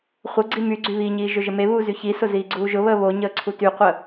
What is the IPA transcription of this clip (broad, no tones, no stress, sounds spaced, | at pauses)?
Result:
χʷ ə ɡ͡ǀ i m y ɡ͡ǀ y β i ɲ iː ʒ ɵ ʒ ə m e β uː z y ç i s ʊ z iː ɡ͡ǀ uː ʒ ʊ β əː β o ɲ əː ǀʰ u t y qʷ ə